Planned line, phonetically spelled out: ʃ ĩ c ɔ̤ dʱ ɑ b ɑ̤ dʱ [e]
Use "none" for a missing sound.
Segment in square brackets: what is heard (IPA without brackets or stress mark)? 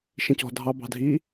i